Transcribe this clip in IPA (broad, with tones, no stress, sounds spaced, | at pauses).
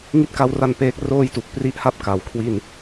ŋ i˥˩ t̚ k a˦˥ w r a˧ n p eː˦˥ k̚ r oː˥˩ j t u˨˩ k̚ p r i˦˥ ʔ h a˥˩ p̚ k a˩˦ w kʰ w i˥˩ n